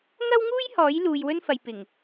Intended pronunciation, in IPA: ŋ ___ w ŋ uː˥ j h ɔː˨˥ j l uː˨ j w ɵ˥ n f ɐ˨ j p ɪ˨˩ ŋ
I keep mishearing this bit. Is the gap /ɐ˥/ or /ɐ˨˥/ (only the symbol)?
ɐ˥